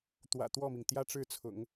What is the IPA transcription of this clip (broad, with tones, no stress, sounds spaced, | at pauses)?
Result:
t̪ w ä̰˨˩ t̪ w ɔ˥˩ m i˩ ŋ t̪ j ä˥ ʈ͡ʂ ɻ̩˥˩ t͡sʰ ʊ̰˨˩˦ ŋ